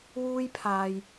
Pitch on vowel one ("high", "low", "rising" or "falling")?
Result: high